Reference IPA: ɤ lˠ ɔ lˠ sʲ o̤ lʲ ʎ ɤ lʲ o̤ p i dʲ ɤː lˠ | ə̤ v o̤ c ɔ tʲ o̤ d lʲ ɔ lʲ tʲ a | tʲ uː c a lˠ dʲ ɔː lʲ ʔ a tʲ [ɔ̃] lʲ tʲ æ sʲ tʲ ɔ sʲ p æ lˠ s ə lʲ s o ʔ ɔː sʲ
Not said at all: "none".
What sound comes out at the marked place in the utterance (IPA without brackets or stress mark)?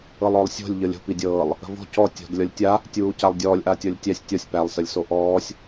ɔ